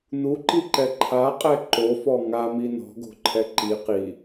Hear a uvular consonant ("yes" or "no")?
yes